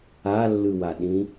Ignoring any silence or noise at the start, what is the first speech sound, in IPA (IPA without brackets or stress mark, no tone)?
a